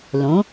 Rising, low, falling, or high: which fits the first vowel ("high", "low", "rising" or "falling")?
rising